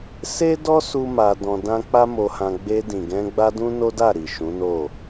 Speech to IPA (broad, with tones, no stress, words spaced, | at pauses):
se˦dɔ˦ su˦ma˧dɔ̃˧dã˦ k͡pa˦mo˧hã˧ ɡ͡be˧dĩ˨ɡɛ̃˧ ɡ͡ba˦dũ˦no˦da˦˨ ɾi˨ʃũ˨˦no˦˨